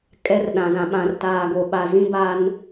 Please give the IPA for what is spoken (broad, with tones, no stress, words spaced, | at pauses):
kʼɛ˦rɗã˨zã˨ ɓã˨r taː˨ɡo˨ɓa˨ zĩ˦ba˦n